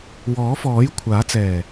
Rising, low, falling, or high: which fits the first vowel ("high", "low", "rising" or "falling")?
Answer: rising